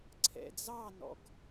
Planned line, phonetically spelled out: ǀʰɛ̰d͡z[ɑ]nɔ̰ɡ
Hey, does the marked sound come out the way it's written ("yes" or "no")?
yes